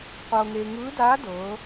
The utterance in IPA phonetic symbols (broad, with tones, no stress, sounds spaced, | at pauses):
qʷ ɤː˧ ŋ eː˧ ŋ ɯː˧˥ d aː˧˥ d ɤː˩˧